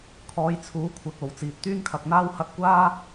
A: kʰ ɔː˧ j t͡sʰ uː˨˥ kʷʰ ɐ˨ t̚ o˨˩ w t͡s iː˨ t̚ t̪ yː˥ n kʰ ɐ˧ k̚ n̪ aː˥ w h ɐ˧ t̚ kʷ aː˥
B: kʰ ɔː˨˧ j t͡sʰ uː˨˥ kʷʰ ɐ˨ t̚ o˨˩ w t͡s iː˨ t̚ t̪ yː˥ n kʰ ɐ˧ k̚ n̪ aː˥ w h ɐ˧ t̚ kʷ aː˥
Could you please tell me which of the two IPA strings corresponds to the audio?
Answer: B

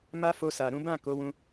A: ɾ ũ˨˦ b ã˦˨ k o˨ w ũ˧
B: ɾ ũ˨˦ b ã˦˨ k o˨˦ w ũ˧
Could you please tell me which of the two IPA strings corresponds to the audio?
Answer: B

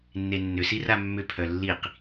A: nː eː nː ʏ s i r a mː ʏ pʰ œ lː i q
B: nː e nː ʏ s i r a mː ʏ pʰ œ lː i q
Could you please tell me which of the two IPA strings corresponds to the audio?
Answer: B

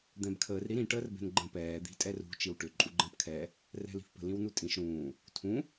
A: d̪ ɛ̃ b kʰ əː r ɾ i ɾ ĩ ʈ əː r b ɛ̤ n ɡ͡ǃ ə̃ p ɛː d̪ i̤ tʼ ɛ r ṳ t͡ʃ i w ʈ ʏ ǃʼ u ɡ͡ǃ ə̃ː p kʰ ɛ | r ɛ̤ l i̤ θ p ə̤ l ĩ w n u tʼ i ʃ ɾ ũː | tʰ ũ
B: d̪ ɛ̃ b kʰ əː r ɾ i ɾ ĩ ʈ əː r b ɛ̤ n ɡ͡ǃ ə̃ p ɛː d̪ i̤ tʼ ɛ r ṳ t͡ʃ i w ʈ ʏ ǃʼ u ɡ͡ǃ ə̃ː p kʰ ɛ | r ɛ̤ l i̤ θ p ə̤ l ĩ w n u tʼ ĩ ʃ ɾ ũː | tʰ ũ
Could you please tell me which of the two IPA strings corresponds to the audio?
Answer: B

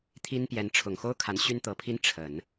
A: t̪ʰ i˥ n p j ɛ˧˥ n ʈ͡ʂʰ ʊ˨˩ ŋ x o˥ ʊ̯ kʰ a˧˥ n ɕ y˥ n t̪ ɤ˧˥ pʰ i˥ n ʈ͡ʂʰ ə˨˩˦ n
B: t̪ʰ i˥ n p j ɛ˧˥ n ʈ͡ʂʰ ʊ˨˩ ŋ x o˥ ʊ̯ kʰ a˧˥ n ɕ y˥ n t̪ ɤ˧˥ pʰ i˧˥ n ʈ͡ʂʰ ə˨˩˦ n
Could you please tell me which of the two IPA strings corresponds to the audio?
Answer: A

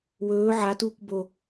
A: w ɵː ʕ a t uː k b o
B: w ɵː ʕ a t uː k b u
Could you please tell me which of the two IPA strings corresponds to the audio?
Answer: A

